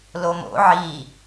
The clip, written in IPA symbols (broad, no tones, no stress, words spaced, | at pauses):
lomo̰ ʕi